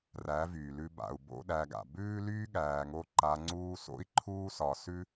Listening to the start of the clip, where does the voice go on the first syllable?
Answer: rising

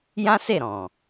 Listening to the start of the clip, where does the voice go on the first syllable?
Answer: high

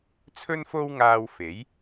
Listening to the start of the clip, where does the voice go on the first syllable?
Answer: high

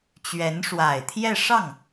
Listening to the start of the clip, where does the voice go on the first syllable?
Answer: rising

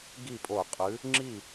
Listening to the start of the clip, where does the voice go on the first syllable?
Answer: falling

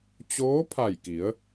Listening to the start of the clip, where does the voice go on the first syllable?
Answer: rising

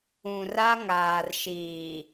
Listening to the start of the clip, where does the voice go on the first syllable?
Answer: low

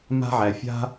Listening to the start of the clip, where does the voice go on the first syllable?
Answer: high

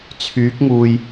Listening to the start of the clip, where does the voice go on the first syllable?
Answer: rising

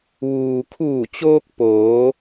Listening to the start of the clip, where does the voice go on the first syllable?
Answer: low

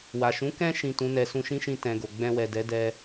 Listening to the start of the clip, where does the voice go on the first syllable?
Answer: low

